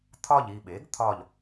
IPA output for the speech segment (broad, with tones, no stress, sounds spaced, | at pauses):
t̪ʰ ɒ˦˨ ʎ i˦˨ ɓ e˩˥ ɡ t̪ʰ ɒ˦˨ ʎ